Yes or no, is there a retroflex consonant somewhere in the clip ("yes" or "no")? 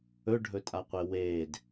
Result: yes